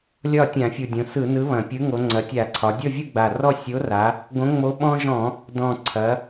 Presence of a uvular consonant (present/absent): absent